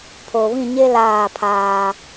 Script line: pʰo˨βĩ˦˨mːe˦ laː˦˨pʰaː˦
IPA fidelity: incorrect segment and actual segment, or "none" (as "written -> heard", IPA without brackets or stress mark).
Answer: mː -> ɲ